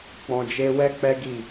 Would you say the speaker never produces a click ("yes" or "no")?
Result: yes